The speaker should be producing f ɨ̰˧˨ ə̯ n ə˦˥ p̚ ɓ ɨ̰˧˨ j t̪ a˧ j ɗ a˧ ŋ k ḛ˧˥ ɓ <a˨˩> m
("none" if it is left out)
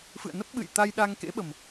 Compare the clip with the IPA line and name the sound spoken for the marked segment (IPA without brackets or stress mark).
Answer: ə˨˩